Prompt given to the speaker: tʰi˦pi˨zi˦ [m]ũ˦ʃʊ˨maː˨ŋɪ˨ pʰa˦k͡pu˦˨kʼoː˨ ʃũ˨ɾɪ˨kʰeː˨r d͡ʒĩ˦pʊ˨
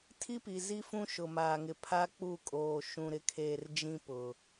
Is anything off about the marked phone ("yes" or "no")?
yes